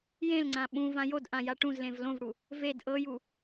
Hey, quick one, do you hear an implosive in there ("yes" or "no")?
yes